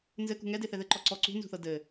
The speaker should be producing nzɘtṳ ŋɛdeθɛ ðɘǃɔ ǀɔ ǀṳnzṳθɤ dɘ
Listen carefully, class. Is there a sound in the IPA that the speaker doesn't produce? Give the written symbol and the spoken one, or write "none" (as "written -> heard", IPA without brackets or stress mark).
t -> k